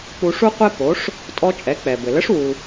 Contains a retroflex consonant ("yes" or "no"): yes